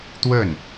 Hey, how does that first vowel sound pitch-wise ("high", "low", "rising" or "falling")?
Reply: falling